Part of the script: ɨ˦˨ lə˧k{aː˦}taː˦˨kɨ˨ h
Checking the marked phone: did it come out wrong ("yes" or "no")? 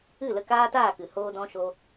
no